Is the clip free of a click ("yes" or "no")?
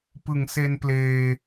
yes